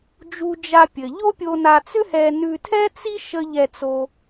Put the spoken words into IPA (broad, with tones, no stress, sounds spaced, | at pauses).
d͡ʒ u˧ d͡ʒ a˧ pʲ ɘ˩ ʎ o˥ pʲ o˧ n a˧ t͡s ʏ˥ h ɛ˧ n ʉ˧ tʰ ɛ˥ t͡s i˥ ʃ ə˧ ʎ ɛ˧ t͡s o˧